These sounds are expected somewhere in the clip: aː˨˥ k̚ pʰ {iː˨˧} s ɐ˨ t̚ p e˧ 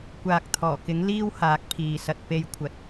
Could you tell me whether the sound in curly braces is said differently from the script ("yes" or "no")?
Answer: yes